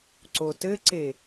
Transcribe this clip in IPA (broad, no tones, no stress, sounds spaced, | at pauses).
ǀ o t ɘ ǀ e